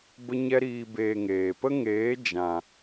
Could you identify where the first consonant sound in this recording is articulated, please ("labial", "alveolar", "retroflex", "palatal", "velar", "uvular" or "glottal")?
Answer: labial